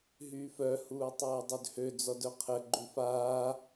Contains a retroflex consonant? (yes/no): no